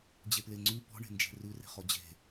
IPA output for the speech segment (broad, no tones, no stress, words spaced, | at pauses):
d͡ʑepleŋ͡ǀy pɔ̤ɳe̤nd͡ʒe̤ rʉre̤χɔ d͡ʑe̤